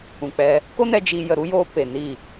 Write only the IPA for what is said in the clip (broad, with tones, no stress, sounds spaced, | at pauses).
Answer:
ũ˨ k͡p ɛ˧ | k o˦ n ɛ˧ d͡ʒ i˧ j ə˨ ɾ u˦ j oː˧ p e˨ n i˦˨